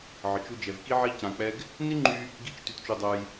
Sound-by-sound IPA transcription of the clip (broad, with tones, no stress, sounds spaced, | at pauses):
ʕ ə˨ t͡ʃ u˧ d͡ʒ ɛ˨ v k i˦ ʕ i˦ c ã˧ k͡p ɛ˦ ɡ | n i˦ ŋ͡ǃ y˧ | ɡ i˦ t͡ʃ t y˧ t t͡ʃ u˧ dˤ œ˧ j